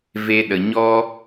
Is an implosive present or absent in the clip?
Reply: present